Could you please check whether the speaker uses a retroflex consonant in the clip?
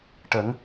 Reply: yes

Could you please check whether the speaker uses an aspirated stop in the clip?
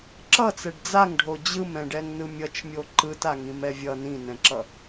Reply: no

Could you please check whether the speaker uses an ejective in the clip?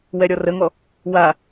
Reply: no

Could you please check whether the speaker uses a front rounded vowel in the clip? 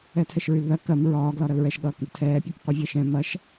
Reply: yes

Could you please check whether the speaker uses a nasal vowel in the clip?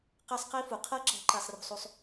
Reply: no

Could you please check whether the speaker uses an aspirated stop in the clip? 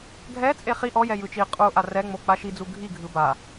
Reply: no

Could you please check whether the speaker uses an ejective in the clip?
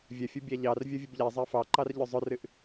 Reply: no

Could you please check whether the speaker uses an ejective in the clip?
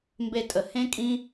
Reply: yes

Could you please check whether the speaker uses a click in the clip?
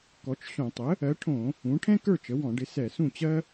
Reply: no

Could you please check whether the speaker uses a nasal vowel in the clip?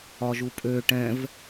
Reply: yes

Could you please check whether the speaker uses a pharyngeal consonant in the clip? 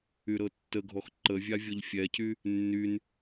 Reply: no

